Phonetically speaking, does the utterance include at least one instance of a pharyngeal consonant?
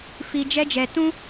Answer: no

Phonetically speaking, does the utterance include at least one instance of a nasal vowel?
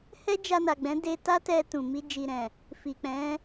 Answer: yes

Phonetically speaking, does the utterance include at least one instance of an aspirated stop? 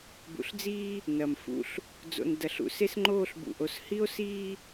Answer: no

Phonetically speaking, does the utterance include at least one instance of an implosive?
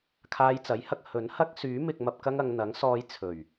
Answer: no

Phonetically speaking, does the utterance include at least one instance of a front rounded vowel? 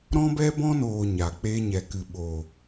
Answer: no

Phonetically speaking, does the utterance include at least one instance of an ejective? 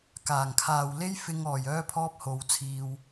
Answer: no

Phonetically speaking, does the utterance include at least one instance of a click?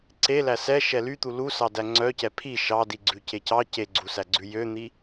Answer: yes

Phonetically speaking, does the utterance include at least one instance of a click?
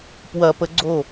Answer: yes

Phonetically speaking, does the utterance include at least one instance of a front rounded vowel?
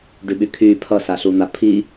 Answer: yes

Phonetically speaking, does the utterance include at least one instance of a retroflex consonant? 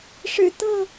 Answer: yes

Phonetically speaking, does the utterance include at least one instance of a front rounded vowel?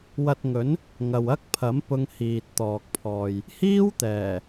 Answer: no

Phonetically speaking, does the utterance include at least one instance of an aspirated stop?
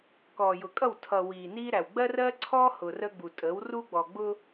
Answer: yes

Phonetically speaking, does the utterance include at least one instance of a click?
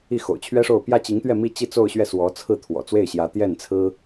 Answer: no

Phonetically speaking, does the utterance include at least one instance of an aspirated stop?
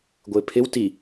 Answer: yes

